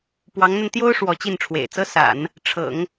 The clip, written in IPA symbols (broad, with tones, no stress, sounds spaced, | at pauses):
p w ɑ˧˥ ŋ n̪ a˧ n t̪ j o˥ ʊ̯ ʂ w ɔ˧˥ t͡ɕ i˥˩ n ʈ͡ʂʰ w ḛ˨˩ ɪ̯ t͡s ɤ˥ s a̰˨˩˦ n | ʈ͡ʂʰ ɤ̰˨˩˦ ŋ